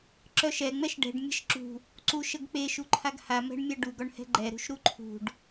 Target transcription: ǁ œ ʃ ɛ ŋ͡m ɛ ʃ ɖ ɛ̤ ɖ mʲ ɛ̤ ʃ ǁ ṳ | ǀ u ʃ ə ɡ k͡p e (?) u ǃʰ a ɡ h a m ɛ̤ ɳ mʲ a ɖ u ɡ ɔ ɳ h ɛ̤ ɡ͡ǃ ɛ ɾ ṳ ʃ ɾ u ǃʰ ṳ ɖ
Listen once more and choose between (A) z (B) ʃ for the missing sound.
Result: B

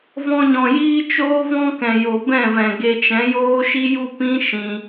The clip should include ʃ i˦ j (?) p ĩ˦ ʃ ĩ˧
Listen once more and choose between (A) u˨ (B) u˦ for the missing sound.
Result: B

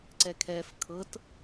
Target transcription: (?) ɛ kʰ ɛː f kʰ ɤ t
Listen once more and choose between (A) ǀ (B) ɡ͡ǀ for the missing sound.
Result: A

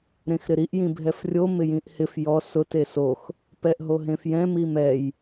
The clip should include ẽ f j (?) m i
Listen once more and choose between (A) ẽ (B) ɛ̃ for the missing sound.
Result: B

